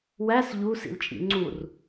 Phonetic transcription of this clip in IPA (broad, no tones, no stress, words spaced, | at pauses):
wæs ʎu sḭlt͡ʃʼḭŋ͡ǀur